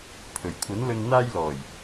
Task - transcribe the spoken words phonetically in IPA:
pʰɵ˨˩ɥkʷʰɐ˨˥nlɵ˧n n̪aː˧jlɔː˨˩j

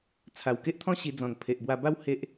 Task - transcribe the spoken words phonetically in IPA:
t͡sʰa˨˩wke˦ʔt̪ʰɔ̃˦ ɕi˧d͡zɔ̃˨˩n pʰe˨ʔbwa˧ba˦w he˦ʔ

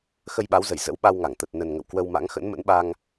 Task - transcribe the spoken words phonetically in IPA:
xə˧jɓa˨˦wzə˧˩j zə̰˧˥wɓa˧wŋa˧˩ŋ t̪ə˨˩t̚nə˨˩nŋə̰˧˨w kwə˧wma̰˧˥ŋ xə̰˧˥nmə̰˧˥nɓa˧ŋ

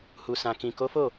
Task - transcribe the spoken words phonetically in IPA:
hu˨sã˨kĩ˨ ko˨˦fo˦˨

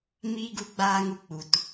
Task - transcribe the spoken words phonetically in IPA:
miː˦ɡu˦ɡ͡baː˦ŋu˧ k͡pu˨t

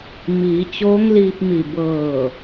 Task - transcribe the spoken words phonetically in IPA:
miː˩˧t͡ɕoː˧˥ŋliː˧p̚mi˧˩ bɤː˧˩

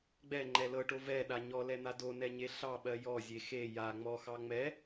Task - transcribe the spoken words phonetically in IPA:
ɡ͡bɛŋ͡ǃɛ lɤʈo vɛɗa ɲɔlɛn̪a donɛɲe ɬɑɓɜ jɔzʲe xe ja ŋ͡mɔxɑ ŋ͡mɛ

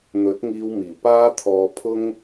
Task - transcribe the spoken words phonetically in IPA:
n̪ɵ˨˥t̚ŋiː˧w miː˨˩paː˥t̪ʰɔː˧pʰʊ˥ŋ

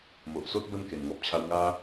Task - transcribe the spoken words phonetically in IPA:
mo˨ʔso˦t̚ bə˥˧n ke˨˩nŋɔ˦p̚t͡ɕʰa˦w ŋa˦

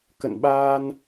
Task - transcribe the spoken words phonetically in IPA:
kə̰˧˨nɓaː˧n

